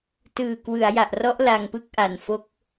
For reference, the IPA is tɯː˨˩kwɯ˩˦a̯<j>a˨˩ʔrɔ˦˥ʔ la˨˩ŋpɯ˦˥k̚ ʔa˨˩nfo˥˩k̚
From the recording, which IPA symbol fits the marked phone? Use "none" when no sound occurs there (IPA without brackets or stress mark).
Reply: j